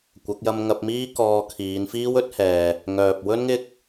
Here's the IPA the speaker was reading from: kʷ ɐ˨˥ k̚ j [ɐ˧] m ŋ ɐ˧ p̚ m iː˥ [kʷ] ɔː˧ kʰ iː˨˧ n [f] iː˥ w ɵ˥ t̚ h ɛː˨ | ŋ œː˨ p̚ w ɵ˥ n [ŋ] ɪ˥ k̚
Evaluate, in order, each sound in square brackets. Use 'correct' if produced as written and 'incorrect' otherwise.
correct, incorrect: k, correct, correct

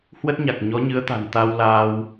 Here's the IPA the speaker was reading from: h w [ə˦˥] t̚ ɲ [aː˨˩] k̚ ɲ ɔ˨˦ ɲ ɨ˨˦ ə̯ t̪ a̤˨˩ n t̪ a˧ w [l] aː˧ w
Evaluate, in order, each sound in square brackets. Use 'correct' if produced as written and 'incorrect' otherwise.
correct, incorrect: a˨˩, correct

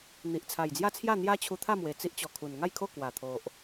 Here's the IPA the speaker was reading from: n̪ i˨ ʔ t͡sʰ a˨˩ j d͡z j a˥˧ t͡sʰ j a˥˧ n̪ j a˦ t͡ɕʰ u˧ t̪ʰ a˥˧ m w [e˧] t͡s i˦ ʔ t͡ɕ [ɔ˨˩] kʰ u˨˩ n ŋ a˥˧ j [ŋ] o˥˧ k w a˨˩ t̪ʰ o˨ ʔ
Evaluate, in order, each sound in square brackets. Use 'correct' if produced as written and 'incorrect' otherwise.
incorrect: e˨˩, correct, incorrect: kʰ

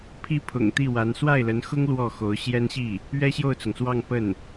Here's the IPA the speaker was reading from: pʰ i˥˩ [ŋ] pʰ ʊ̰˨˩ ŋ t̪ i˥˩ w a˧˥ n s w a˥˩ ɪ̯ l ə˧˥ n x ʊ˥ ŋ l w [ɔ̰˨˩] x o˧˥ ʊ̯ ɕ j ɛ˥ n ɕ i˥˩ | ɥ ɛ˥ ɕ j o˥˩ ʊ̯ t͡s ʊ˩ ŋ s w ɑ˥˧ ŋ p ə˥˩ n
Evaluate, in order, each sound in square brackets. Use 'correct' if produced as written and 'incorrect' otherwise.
incorrect: none, incorrect: ɔ˥˩

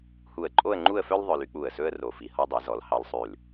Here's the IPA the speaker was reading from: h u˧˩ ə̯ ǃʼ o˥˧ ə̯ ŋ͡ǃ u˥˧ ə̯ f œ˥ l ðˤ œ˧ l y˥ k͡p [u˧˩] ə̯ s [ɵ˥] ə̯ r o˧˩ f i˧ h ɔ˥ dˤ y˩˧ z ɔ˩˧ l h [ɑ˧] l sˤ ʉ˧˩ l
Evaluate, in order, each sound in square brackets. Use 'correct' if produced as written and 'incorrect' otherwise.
correct, correct, correct

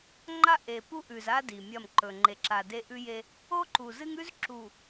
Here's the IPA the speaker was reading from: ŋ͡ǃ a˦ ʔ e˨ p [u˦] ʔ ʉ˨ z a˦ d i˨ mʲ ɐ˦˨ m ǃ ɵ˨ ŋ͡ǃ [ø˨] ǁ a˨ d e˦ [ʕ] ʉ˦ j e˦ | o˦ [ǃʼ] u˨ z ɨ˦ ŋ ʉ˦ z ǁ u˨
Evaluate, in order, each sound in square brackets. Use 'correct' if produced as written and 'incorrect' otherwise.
correct, incorrect: e˨, incorrect: ʔ, incorrect: ǃ

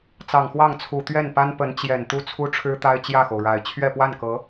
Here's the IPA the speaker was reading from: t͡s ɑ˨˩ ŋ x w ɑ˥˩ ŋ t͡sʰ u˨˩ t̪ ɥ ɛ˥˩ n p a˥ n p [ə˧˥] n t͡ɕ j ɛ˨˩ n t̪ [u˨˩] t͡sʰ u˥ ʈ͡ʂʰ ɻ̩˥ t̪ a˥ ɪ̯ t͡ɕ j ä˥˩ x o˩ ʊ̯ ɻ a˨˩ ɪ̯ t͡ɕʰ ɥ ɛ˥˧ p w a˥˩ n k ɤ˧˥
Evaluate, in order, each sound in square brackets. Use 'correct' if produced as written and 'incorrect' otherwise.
correct, incorrect: u˥

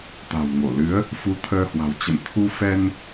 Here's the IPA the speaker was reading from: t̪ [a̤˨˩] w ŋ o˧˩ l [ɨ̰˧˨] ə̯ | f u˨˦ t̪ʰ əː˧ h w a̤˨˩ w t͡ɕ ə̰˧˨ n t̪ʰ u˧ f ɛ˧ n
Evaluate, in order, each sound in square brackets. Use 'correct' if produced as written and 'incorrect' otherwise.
correct, incorrect: ɨ˨˦

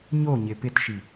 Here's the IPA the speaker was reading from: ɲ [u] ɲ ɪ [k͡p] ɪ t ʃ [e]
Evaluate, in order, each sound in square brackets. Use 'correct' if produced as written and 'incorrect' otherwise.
incorrect: o, incorrect: p, incorrect: i

